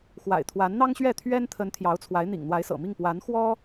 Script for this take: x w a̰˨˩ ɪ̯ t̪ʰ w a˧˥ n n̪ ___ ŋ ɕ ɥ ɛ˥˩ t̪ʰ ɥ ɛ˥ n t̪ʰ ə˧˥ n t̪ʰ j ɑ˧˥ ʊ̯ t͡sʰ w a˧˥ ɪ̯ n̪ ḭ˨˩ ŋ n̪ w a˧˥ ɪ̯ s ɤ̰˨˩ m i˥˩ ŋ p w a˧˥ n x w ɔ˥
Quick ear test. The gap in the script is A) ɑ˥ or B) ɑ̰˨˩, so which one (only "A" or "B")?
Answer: A